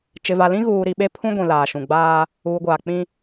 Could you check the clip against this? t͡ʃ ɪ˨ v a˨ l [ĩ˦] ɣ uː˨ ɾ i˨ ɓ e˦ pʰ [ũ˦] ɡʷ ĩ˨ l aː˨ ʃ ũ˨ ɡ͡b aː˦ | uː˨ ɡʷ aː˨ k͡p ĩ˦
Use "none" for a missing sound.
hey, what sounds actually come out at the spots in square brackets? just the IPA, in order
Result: ĩ˦, ũ˦

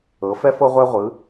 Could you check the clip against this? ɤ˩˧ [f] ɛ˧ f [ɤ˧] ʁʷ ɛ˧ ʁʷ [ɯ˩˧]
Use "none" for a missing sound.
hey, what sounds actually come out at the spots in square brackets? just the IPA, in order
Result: f, ɤ˧, ɯ˩˧

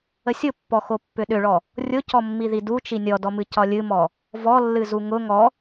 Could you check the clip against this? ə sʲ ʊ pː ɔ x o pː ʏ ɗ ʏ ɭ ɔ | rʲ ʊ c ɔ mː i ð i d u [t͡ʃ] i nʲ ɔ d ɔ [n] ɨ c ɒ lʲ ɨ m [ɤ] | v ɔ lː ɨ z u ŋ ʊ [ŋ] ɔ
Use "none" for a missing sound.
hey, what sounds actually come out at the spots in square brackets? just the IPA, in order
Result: t͡ʃ, m, ɔ, ŋ

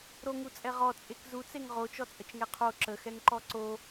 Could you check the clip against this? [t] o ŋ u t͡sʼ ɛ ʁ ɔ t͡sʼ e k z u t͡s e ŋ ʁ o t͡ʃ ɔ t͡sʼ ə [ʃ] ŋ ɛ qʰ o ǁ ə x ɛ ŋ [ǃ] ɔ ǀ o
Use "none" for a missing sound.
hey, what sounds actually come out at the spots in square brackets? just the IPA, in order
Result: ɾ, t͡ʃ, ǃ

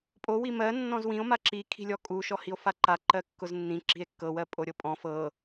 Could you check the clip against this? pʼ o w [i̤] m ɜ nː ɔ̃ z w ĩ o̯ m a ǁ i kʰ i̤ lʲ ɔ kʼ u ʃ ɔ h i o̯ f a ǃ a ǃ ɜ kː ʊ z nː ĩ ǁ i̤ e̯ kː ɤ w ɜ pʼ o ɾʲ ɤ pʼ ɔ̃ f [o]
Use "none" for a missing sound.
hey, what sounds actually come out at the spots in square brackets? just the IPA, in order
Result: i, ɤ

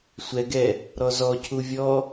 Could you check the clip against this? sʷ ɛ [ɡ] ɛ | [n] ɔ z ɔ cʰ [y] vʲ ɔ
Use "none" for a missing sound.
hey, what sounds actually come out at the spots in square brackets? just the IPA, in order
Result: ɡ, ɾ, u

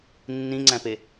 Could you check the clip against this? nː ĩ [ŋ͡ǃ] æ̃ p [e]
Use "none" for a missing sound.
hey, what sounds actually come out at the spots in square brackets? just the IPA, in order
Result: ŋ͡ǀ, e

